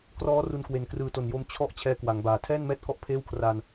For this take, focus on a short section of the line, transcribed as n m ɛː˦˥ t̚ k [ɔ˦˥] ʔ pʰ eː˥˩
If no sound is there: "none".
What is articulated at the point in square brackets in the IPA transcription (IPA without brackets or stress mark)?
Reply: ɔ˥˩